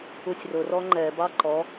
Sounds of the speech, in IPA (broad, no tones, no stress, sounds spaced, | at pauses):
u sʲ r ʊ r ɔ ŋ͡ǃ ɛ b ɑ ǃ ɔ